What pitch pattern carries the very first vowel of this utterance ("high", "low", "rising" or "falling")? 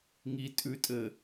low